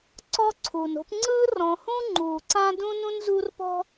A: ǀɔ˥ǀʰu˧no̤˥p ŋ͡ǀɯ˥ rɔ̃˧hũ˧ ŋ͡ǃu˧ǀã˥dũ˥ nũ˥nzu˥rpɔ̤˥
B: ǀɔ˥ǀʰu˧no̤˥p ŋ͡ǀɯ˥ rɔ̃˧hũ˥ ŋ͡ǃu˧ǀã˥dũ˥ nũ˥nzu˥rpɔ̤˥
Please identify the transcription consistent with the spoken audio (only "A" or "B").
B